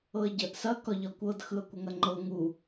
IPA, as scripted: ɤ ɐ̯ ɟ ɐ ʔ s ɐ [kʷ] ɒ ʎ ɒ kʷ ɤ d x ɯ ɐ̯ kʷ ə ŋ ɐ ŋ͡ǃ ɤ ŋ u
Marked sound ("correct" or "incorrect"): incorrect